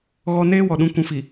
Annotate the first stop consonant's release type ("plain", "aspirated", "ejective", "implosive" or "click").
implosive